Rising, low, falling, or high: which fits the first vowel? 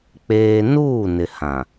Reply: high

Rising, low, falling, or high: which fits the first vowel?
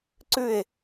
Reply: falling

